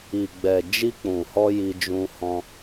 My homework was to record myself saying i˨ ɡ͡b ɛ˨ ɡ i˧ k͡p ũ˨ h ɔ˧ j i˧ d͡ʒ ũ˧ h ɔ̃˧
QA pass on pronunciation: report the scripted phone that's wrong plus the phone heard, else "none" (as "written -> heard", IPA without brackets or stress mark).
ɡ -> d͡ʒ